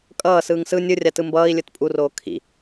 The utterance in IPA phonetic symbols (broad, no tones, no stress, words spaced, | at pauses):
kʼʌː sɯːŋsɯ nʲɯrʲatɯ mbʌːi̯lʲɯt pʼuroː kʰḭ